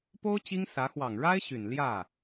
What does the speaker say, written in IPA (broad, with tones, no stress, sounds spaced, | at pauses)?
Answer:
p o˥ ʊ̯ t͡ɕ i˥ ŋ s ä˧˥ x w ɑ˨˩ ŋ ɻ a˥ ɪ̯ ɕ y˨˩ n l j ä˥˩